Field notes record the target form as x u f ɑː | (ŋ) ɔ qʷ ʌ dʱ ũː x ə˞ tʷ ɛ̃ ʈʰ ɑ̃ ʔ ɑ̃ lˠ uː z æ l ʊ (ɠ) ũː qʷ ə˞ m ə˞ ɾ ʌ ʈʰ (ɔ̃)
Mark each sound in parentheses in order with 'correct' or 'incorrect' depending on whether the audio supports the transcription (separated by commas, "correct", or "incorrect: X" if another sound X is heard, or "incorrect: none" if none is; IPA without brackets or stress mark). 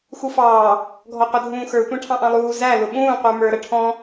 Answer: incorrect: ɡʱ, incorrect: ɓ, correct